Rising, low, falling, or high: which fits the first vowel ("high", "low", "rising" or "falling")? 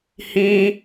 high